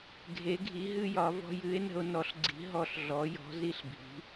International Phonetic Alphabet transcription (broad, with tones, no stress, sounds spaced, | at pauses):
ɡʱ e˨˥ ɡʱ i˨˥ ɦ ɨ˦ j ɒ˨˥ v ɔ̤˦ j ɨ˨˥ e̯ n ə̤˦ o̯ n ɔ˨˥ ɬ ɡ͡ǀ i̤˨˥ ɦ ɔ˦ ɬ ɮ ɔ˨˥ j ɔ̤˨˥ z i˦ ɬ bʱ i̤˨˥